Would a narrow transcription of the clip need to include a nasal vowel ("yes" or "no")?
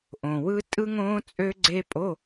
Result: yes